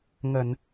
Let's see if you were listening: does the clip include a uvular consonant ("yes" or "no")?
no